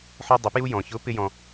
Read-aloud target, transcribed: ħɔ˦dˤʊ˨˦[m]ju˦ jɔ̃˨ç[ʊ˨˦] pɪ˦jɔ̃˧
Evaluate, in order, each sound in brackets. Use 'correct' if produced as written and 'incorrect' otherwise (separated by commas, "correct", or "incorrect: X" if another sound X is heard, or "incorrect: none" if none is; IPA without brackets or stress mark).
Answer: incorrect: p, correct